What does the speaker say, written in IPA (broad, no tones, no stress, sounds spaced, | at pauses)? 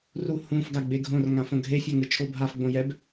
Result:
r u h ũ f ɡ a ɡ͡b e ɡʱ õ r ŋ ã f õ ɡʱ e fʲ a ŋ ɯ t͡ʃʰ o bʱ a f ɡ͡b õ j ɛ b